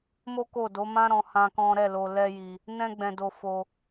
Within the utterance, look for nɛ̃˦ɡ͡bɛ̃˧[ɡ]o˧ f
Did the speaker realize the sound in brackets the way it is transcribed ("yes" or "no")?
no